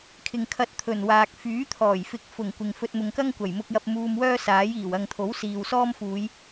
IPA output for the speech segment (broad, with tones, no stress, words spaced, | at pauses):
kʰɪ˨ŋkʰɐ˧t̚ t̪ʰɵ˨˩nwaː˨k̚ fyː˨˥t̪ʰɔː˨˩jfɪ˨˥k̚ fʊ˨˩ŋ kʷɪ˨ŋfɵ˧t̚ mʊ˨ŋkɐ˥ŋkʷɐ˨˩j mʊ˧k̚jɐ˧p̚ muː˧mwœː˥saː˨˥jiː˨˩w ɐ˨ŋt̪ʰo˨˥w siː˨wsɔː˥m fuː˨˧j